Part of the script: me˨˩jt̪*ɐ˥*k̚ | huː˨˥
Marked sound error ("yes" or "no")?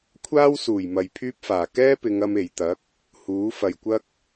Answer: yes